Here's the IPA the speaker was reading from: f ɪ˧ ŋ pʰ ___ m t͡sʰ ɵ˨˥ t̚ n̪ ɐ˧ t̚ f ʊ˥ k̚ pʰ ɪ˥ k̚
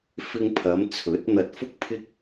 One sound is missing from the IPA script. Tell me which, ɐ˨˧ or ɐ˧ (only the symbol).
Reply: ɐ˨˧